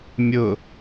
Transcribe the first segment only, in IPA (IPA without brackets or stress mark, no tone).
mʲ